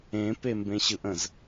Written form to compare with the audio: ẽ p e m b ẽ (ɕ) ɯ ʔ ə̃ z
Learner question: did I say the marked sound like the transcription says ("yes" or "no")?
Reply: yes